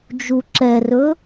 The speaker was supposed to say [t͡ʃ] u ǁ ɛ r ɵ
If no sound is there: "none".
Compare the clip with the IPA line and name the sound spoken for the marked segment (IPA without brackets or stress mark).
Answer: d͡ʒ